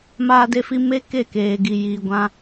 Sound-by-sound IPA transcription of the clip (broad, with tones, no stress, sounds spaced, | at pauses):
m aː˧ d e˧ f i˧ m e˦ k e˦˨ k eː˨ ɡ i˨ j iː˨ ɡʷ ã˧